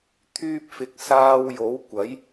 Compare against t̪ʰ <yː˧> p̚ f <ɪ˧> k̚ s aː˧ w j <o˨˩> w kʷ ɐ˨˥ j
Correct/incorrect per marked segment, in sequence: correct, incorrect, incorrect

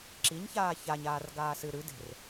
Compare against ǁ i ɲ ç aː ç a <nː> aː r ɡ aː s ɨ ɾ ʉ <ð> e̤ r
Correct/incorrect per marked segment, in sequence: incorrect, incorrect

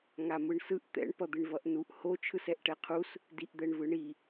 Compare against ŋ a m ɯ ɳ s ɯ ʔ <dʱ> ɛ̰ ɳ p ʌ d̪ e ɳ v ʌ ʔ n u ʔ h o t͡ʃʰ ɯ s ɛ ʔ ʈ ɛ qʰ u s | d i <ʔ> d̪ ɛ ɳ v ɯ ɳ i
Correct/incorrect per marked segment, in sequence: incorrect, correct

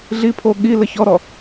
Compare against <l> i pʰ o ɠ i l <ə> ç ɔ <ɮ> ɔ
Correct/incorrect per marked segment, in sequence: incorrect, correct, incorrect

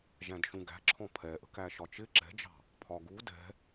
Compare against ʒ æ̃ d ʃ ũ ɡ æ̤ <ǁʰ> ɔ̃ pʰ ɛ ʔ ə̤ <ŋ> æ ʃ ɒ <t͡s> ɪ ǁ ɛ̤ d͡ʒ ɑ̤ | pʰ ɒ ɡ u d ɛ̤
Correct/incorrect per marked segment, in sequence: correct, incorrect, incorrect

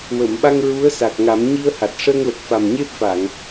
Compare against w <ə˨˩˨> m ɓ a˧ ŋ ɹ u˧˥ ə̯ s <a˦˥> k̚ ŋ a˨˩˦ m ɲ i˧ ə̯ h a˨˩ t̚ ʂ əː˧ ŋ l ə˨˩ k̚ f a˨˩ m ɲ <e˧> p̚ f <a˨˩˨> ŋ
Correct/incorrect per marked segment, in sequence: correct, incorrect, incorrect, correct

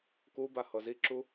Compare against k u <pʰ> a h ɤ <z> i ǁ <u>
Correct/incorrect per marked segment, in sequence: incorrect, correct, correct

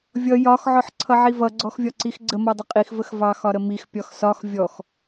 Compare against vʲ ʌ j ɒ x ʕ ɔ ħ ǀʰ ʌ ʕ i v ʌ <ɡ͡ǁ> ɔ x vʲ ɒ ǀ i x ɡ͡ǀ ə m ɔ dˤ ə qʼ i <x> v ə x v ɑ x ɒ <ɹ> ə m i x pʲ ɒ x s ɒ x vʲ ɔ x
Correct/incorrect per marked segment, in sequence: incorrect, correct, incorrect

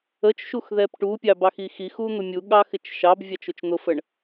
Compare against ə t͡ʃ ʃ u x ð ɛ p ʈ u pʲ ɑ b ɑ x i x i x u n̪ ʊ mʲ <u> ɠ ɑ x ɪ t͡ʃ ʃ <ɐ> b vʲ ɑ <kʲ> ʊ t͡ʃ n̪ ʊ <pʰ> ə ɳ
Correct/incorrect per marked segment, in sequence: correct, incorrect, incorrect, incorrect

